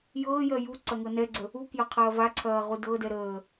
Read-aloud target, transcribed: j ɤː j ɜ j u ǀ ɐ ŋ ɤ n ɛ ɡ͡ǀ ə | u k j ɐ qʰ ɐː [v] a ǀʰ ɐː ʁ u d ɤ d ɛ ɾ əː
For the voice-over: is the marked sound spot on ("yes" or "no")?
yes